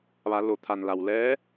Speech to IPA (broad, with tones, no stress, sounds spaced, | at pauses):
ʋ a˩˧ l o˩˧ t̪ʰ a˩ n l a˩ w l ɛː˧˥